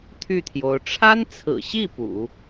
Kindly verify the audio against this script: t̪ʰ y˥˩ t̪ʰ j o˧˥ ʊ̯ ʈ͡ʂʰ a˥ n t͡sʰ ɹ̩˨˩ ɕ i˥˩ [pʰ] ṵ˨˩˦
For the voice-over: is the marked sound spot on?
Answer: no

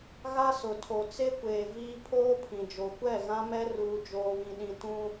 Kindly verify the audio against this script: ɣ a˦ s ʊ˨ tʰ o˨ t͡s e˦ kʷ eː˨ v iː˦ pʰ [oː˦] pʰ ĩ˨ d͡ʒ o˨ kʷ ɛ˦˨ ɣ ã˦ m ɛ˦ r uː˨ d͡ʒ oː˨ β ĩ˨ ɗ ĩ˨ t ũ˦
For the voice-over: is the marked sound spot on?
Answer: yes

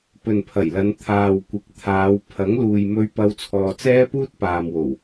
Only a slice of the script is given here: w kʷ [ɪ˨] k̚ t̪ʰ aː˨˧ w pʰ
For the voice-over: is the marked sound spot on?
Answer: no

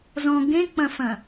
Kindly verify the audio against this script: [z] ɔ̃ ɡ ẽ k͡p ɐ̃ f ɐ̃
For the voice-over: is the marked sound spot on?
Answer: yes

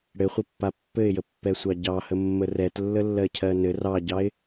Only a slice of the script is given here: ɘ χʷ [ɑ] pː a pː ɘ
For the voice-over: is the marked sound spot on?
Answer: no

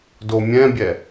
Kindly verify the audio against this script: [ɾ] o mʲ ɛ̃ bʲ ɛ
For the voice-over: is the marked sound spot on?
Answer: no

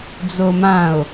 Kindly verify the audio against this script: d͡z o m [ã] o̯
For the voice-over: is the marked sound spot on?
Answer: yes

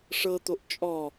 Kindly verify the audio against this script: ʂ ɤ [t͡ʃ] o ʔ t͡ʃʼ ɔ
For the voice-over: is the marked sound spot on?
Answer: no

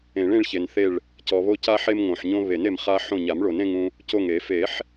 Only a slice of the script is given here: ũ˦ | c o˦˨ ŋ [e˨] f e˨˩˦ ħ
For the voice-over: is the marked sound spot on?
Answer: no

